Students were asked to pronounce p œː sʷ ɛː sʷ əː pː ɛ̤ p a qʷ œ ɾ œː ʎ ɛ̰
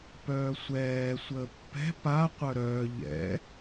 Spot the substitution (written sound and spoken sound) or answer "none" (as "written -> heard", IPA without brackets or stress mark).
none